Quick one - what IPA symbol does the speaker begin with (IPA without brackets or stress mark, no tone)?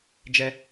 d͡ʒ